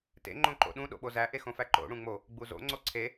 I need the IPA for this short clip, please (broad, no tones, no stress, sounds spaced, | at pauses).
t ḛ ŋ͡ǃ õ ǃ o̰ ɗ ũ ɗ o̰ ɓ o z æ ʔ e x õ f æ ǃ o̰ ɽ ũ ŋ͡m o | ɡ͡b u z o̰ ŋ͡ǀ o ǀʰ e